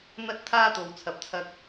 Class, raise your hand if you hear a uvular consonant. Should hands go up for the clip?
no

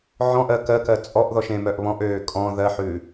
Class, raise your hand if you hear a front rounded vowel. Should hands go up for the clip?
yes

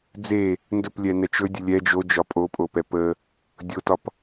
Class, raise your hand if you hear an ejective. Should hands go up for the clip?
yes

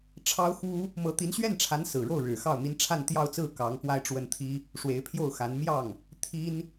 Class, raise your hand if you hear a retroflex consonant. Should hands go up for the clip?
yes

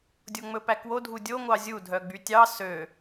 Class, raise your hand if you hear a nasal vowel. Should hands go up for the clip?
no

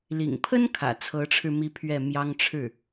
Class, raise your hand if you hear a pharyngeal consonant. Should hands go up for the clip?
no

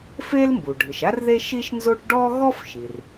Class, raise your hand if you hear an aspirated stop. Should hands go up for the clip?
no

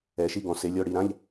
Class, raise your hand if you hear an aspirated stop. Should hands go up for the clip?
no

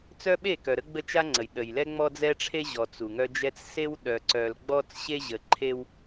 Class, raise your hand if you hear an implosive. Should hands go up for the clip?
yes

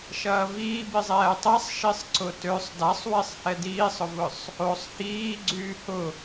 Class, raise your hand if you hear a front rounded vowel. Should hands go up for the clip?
yes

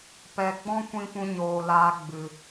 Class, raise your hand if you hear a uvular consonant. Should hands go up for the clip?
no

